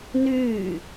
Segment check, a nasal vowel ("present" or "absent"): absent